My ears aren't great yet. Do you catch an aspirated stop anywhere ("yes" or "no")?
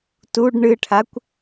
yes